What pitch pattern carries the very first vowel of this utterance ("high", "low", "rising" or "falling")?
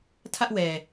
high